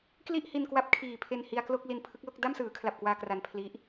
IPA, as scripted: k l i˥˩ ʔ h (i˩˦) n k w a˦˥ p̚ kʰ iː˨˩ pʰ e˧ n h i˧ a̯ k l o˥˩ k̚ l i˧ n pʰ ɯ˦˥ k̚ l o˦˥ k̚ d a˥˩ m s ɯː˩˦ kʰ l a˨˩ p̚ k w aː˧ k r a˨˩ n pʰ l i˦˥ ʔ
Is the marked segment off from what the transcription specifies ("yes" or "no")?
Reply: yes